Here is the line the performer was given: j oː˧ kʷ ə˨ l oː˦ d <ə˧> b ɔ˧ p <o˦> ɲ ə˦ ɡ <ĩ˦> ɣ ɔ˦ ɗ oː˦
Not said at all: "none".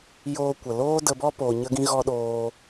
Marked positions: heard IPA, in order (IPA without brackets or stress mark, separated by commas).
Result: ə˧, o˨, ĩ˦